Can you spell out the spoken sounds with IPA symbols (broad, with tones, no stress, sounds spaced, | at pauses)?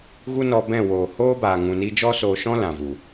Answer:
ɣ u˦ n ɔ˧ b ɛ̃˦˨ w oː˨ h oː˦ b aː˨ ŋ ũ˨ n i˧ d͡ʒ ɔ˦ s oː˧ ʃ ɔ̃˦ l ã˨ v u˨